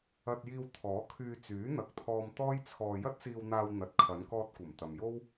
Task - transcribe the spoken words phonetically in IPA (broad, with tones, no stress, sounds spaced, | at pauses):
ɐ˧ t̚ j iː˧ w t̪ʰ ɔː˨˥ kʰ yː˧ t͡s yː˨˥ n̪ ɐ˨ k̚ t̪ʰ ɔː˧ m t̪ ɔː˥ j t͡sʰ ɔː˧ j ɐ˥ t̚ s iː˧ w n̪ aː˧ w n̪ ɐ˨ t̚ kʰ ɐ˨˧ n k ɔː˧ t̚ kʷ ɐ˨˩ m t̪ ɐ˨ m j o˥ w